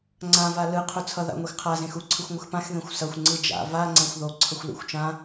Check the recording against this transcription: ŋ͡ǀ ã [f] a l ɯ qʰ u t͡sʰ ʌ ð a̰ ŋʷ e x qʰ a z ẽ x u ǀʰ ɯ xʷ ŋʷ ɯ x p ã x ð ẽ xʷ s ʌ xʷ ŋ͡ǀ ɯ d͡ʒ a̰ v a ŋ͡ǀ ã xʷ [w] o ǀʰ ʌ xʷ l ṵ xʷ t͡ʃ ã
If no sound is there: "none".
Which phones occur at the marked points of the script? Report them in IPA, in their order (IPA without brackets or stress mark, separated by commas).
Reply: v, ð